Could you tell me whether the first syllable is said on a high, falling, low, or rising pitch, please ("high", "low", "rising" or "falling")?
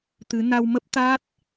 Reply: rising